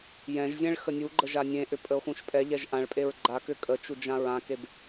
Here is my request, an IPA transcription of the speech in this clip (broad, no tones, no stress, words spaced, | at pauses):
jɛ̃ʒzʲɛ̃ɭ xənʲuɡ͡ǃə ʒanʲẽʔʏ pʼəo̯xũʃpʼɛʎɛʒ ʔãɭpʼeɹ ɡ͡ǃa kʏkʼət͡ʃu d͡ʒãɹãkeb